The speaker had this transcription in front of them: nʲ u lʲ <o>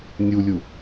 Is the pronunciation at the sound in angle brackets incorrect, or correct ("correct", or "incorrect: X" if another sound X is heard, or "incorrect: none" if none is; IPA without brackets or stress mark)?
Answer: incorrect: u